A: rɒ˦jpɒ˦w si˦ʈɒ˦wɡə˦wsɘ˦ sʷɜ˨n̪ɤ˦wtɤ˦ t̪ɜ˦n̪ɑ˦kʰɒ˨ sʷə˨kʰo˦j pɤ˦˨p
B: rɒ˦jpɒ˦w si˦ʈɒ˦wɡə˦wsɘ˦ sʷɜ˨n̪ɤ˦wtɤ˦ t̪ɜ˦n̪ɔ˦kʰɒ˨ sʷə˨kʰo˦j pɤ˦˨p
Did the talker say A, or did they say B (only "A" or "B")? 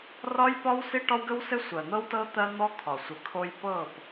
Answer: B